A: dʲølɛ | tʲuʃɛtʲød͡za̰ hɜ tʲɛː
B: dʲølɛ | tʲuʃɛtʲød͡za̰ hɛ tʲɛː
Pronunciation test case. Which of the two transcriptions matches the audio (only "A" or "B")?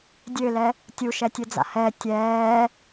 B